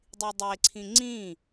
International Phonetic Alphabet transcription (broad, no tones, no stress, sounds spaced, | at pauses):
dˤ i dˤ e ǀʰ ĩ ŋ͡ǀ ĩ